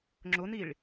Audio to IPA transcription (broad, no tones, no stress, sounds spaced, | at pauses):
ŋ͡ǁ ʊ n i ɭ